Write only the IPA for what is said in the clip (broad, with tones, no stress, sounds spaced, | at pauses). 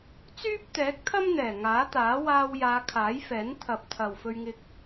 t͡s yː˥ p̚ t̪ ɛː˨˥ k̚ t̪ʰ ɐ˥ m n̪ ɛː˨˩ ŋ aː˨˥ t̪ aː˨˥ w aː˧ w j aː˨˧ kʰ aː˨˥ j f ɛː˨˥ n t̪ʰ ɐ˨ p̚ t̪ʰ ɐ˨ w f ɵ˧ ɥ ŋ ɪ˧ k̚